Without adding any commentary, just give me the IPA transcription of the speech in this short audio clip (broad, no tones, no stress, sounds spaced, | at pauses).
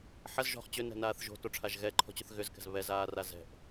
ħ ɐ z ʒ ɔ̤ χ t͡ɕ ʏ n ɛ̤ n aː θ ʒ o̤ t o ʈ͡ʂʰ a ʒ ɣ ɛ ǃʰ ɔ̤ t͡ɕ ʏ θ ɣ ʏ z k ɛ̤ z β ɛ z aː r a z ɛ̤ ʔ